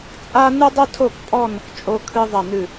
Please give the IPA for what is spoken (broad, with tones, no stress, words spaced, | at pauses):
t͡sʼa˦ nɨ˦dˤɘ˦tʰo˦˨kpʼɔ˦˨n | t͡ʃʼo˦kʰɨ˦ ðˤɐ˦˨nɨ˦˨